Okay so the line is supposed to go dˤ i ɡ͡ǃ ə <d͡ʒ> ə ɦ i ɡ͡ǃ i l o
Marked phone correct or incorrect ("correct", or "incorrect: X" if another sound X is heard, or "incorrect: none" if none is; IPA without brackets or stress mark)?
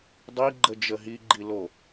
correct